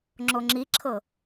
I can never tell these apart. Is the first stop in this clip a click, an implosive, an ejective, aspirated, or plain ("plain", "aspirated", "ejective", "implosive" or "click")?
click